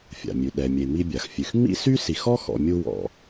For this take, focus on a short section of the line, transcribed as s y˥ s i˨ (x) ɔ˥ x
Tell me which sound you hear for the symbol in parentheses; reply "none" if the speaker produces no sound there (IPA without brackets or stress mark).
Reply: x